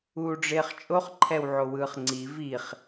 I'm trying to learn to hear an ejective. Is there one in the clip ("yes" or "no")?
yes